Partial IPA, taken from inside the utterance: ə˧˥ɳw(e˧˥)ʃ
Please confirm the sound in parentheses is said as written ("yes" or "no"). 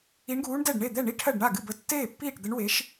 yes